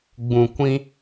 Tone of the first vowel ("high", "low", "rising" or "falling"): low